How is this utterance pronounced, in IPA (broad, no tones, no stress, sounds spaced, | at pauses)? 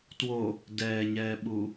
t w o | d ɛː ɲ ɛː ɓ u